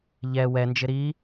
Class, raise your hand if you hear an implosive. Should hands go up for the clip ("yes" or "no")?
no